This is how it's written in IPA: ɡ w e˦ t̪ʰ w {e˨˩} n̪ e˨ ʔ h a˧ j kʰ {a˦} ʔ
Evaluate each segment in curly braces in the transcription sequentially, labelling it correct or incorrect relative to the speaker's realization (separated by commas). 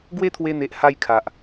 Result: incorrect, incorrect